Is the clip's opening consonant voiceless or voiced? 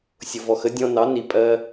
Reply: voiceless